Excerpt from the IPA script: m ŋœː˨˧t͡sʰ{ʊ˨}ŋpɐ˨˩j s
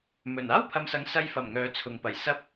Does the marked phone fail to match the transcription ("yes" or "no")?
no